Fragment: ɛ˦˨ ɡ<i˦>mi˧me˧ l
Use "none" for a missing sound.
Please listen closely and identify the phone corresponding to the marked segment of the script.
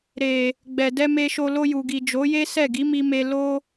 i˨˦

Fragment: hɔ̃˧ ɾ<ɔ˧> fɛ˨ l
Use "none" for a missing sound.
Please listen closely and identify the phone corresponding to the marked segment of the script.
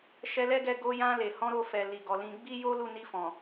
o˧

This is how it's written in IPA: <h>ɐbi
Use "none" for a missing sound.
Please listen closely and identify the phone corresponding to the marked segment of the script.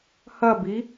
h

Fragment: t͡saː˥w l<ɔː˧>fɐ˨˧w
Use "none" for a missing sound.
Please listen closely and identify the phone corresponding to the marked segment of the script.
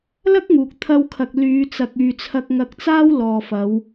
ɔː˨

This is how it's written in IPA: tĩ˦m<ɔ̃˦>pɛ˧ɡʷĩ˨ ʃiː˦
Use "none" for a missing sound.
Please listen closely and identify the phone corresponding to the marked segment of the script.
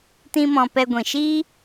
ɔ̃˧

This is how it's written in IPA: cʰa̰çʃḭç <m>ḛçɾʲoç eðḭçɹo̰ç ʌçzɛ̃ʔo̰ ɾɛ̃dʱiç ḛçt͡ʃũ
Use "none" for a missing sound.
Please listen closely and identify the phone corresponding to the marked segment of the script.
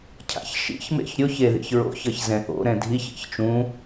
m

